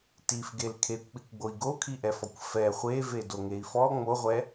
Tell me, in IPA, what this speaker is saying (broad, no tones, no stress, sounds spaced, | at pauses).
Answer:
t i f ɡ e l kʰ e kʷ k͡p i kʷ ɡ͡b o i̯ ɡ o kʰ i ʔ ɛ f ɔ kʷ f ɛ χʷ e v e d o ŋ e i̯ f ɔ ŋ͡m o ʁʷ ɛ